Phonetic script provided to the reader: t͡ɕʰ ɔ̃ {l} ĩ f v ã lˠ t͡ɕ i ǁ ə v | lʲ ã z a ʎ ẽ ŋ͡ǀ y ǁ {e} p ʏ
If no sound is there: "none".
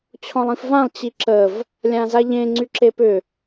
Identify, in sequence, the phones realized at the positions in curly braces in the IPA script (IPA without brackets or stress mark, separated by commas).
lˠ, e